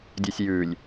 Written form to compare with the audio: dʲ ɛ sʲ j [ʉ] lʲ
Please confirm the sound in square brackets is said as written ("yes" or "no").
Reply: yes